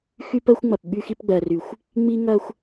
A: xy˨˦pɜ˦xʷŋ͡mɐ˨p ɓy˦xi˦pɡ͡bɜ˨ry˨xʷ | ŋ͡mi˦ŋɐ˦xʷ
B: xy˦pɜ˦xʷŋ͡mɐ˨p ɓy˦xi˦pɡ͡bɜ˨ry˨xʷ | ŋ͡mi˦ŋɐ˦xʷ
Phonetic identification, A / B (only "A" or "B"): B